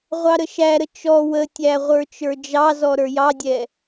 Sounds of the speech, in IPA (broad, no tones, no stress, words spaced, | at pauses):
ʁʷɑɾəʃæɾə t͡ʃɔ wətʲæ ʁʷə˞t͡ʃə˞d͡ʒɑzɔ ɾə˞jɑdʲɛ